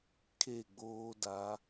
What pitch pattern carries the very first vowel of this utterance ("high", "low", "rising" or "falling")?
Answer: falling